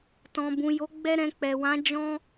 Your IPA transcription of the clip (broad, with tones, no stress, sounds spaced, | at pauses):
t ɔ̃˨ b ũ˨ j o˨˦ ɡ͡b ɛ˦ ɾ ɛ̃˧ k͡p ɛ˨ w ã˨˦ d͡ʒ ɔ̃˦